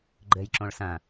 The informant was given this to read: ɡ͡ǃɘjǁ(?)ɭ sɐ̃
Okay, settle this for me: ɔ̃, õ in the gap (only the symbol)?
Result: õ